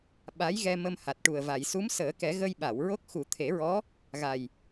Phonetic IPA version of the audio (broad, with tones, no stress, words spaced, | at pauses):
ɓa˧˥jɣɛ˧ mə˧mha˨˩t̚ʈu˨˩ə̯ va˨˩˨jsu˧˥msəː˨˩˦kɛ˨˩˦ ɣə˧jɓa˨˩˨wɹo˦˥k̚ xu˨˩˦t̪ʰe˨˩˦ɹɔ˧˥ | ɣa˨˩j